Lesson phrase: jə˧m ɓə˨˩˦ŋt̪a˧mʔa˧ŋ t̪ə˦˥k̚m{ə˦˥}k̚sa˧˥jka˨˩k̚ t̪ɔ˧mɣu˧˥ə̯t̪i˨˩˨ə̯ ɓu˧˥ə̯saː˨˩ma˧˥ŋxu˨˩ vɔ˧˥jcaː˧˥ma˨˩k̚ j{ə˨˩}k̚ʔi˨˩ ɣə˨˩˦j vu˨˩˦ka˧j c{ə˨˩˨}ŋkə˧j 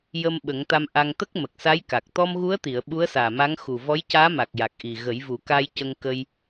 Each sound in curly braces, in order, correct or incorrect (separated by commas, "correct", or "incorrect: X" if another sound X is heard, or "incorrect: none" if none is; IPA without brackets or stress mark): incorrect: ə˨˩, incorrect: a˨˩, incorrect: ə˧